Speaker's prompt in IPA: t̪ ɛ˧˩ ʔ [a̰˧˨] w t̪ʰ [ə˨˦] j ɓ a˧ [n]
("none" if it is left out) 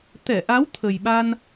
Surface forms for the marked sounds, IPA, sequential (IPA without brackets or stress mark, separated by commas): a˨˦, ə˨˩, n